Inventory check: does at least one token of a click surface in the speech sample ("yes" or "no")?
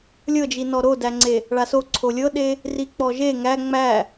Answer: yes